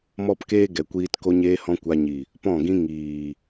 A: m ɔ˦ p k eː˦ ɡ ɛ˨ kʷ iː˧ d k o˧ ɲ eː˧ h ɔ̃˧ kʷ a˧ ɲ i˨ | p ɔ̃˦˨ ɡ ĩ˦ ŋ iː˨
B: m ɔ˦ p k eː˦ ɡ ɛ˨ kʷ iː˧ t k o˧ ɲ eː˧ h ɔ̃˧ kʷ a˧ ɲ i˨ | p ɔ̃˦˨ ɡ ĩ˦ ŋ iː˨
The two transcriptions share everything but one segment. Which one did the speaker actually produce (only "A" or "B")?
B